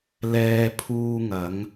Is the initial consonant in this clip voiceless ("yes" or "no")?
no